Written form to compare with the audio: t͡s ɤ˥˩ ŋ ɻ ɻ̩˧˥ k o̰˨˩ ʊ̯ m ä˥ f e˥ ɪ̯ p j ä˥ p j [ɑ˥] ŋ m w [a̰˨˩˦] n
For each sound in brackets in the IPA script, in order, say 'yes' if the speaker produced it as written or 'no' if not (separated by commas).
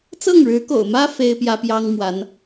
yes, no